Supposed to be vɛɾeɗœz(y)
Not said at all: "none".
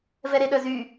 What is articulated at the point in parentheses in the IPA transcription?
y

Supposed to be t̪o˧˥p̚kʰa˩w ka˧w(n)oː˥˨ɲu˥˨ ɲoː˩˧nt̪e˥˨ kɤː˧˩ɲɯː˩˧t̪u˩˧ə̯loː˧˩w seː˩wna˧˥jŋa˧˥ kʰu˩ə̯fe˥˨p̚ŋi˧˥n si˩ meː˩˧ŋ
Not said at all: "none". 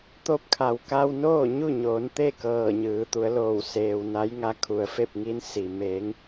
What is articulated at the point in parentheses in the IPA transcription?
n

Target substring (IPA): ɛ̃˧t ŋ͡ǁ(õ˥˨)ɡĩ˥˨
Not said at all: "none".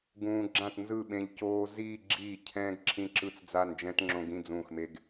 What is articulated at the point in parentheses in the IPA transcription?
õ˧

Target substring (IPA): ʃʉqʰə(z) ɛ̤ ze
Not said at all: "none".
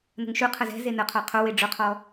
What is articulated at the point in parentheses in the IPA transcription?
z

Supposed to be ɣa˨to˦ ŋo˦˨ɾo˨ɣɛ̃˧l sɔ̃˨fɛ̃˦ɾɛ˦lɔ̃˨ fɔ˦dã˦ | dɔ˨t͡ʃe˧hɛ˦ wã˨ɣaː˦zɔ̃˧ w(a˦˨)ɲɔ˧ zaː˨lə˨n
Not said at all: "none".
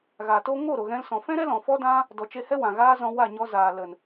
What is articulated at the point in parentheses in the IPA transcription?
a˦˨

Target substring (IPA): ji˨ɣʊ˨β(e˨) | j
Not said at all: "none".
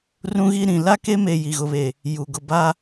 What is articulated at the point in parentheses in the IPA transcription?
e˨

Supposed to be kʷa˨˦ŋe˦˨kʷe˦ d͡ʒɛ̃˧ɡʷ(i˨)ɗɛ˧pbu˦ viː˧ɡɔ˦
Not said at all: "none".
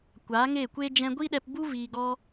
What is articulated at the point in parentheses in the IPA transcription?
i˦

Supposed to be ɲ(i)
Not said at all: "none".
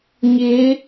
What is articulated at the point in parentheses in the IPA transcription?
e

